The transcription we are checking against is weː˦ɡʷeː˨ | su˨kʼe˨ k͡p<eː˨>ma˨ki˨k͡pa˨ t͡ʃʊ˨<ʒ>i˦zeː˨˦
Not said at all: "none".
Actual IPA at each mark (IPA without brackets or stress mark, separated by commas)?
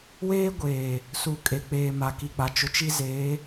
eː˨, t͡ʃ